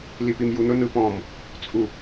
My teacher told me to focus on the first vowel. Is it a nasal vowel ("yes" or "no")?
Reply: no